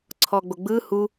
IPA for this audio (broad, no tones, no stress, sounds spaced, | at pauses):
ǀʰ ɔː ɡ͡b o ɡ͡b ɯː h u